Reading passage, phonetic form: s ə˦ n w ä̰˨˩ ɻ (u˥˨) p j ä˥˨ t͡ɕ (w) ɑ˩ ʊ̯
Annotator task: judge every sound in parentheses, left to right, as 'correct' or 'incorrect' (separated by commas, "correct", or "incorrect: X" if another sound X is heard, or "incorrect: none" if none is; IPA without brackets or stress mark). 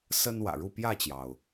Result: correct, incorrect: j